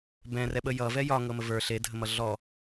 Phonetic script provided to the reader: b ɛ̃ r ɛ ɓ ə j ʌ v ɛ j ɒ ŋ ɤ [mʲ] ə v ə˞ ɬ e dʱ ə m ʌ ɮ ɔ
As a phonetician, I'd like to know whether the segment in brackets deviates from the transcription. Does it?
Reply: yes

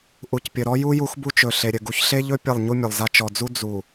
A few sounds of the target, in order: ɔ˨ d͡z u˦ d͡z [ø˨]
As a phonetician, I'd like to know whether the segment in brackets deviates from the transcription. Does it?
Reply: yes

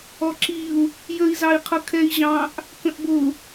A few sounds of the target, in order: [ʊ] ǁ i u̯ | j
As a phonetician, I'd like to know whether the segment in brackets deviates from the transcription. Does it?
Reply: yes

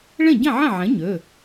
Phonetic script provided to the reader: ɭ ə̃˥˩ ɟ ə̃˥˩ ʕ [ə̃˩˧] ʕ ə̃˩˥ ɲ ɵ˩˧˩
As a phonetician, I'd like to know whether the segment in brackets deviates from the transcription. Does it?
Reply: yes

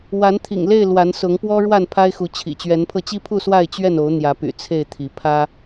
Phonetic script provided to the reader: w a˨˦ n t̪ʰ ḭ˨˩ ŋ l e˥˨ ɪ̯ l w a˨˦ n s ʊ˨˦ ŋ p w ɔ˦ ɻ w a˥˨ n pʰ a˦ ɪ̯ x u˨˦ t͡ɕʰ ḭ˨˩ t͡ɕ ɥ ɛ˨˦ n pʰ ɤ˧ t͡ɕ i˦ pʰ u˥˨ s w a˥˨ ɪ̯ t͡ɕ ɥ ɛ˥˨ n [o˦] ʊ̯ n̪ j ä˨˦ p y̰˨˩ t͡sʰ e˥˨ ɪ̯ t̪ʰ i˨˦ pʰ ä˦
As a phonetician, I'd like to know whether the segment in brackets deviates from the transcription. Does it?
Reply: yes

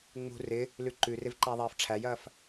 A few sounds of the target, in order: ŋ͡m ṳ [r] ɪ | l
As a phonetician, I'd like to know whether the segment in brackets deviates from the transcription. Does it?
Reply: no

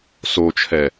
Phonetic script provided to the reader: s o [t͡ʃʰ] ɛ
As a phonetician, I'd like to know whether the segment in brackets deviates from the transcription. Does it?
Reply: no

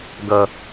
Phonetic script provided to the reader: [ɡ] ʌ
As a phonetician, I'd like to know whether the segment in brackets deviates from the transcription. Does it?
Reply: no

